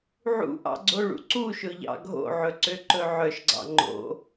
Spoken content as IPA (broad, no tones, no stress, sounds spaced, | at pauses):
ʕ ṵ ʔ ɑ̰ ɡ͡ǀ o ɭ ṵ ǀ u ʃ ɵ ʎ ɑ̰ ɡʱ o̰ ʕ ɵ ǀ ø ǃ ɵ ʕ œ ʃ ɡ͡ǀ ɑ̰ ŋ͡ǃ o̰